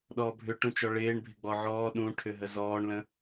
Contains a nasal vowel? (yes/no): yes